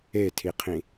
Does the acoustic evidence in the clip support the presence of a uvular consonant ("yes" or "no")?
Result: yes